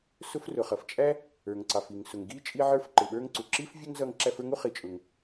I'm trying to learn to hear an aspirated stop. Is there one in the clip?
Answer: no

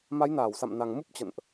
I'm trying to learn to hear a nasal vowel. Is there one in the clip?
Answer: no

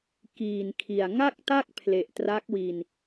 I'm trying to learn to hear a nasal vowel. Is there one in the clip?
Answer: no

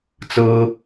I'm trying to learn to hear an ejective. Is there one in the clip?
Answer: no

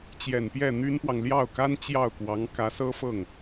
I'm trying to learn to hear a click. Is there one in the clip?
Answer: no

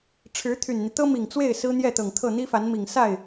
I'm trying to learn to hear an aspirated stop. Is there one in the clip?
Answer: yes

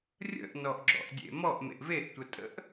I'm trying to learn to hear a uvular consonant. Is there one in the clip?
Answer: no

